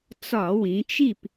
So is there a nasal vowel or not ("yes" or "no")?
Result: yes